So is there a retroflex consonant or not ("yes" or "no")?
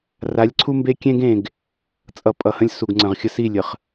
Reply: no